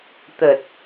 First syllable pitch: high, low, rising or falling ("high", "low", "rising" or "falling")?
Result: low